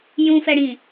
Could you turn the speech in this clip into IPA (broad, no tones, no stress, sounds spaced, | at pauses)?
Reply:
j ũ f ɛ ɽ ĩ